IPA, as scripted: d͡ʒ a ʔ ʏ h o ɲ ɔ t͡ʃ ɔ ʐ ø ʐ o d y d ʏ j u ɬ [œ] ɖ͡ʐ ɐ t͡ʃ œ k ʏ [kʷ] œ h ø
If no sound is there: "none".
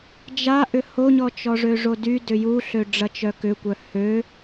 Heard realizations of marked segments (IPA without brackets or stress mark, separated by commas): ø, kʷ